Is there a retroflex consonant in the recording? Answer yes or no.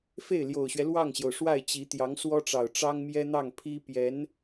yes